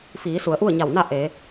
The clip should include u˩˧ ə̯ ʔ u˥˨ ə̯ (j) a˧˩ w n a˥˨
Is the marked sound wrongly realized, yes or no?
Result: yes